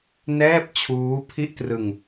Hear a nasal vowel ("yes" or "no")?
no